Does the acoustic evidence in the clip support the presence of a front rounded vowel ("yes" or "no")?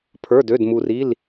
yes